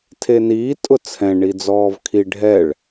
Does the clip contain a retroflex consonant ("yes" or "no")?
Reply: yes